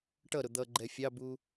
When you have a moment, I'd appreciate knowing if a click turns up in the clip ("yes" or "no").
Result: yes